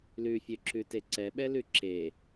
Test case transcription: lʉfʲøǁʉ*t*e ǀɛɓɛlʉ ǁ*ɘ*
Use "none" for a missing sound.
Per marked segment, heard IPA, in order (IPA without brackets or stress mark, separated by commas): t, e